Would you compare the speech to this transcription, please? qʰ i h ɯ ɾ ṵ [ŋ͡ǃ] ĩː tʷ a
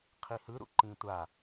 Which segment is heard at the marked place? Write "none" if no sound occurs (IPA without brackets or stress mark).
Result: ǃ